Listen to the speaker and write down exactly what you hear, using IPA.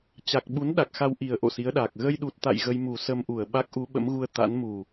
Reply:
t͡ɕ a˨˩ k̚ ɓ u˨˦ n ɗ a˨˩ k̚ x a˧ w ʔ i˨˩ ə̯ ʔ o̰˧˨ s i˨˦ ə̯ ɗ aː˨˩ k̚ ɣ ə˧ j ɗ u˨˩ t̚ t̪ a̰˧˨ j ɣ ə˧ j m u˨˩ s ə˧ m ʔ u˨˩ ə̯ ɓ a˦˥ k̚ ʔ u˨˦ ɓ ə̰˧˥ m ɣ u˧ ə̯ t̪ a̰˧˥ n m u˨˩

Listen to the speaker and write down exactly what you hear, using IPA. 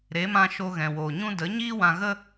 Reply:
ɾ e˨˦ m ã˧ ʃ o˧ ɣ ɛ̃˨ w oː˨ ɲ ũ˦ d ə˨˦ ɲ iː˦ w ã˧ ɣ ə˦

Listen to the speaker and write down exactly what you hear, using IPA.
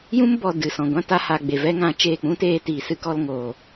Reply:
j ũ˦ m b ɔ˨ d ɨ˨ s ɔ̃˨ ɡʷ ã˦ t a˧ h a˨ ɡ͡b e˨ v ɛ˦ ŋ ã˨˦ t͡ʃ eː˦˨ k͡p ũ˦ t eː˧ t iː˨ s ɨ˦ k ɔ˧ l ŋ oː˨

